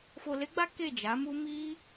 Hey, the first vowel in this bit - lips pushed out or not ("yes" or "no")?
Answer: yes